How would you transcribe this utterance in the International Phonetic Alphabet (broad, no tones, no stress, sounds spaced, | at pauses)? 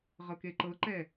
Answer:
ʁ ɤ k e ǃ ɤ ǃ ɛ